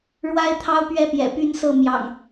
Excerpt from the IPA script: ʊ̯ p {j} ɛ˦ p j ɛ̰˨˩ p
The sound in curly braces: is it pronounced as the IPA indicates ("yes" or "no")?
no